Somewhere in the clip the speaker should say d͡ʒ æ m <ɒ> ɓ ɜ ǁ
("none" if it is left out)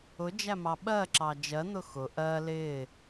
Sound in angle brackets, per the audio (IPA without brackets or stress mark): ɑ